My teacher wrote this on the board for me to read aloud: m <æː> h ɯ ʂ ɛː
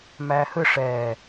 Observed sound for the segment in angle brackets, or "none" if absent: æː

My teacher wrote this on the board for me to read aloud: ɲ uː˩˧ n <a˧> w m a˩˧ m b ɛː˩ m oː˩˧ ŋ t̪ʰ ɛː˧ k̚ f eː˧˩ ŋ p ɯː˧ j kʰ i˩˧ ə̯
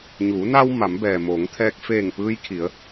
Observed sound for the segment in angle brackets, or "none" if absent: a˧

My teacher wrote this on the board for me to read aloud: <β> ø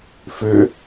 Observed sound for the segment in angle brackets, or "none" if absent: f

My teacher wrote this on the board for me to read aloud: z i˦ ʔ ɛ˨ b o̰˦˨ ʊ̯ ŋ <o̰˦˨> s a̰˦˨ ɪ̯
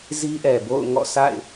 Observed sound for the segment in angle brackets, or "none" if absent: ɔ̰˦˨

